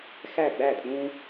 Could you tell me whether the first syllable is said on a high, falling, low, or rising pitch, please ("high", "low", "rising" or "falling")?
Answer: falling